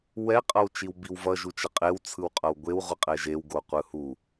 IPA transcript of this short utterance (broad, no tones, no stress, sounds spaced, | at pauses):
w ɛ qʼ ʌ w t͡ʃ i w b i w v ʌ ʒ u t͡ʃ ʌ qʼ e w t͡sʰ ɯ w qʼ ʌ w ɡʷ e w ʁʷ ɯ qʼ ɛ ʒ e w ɡ o qʷ ɯ h u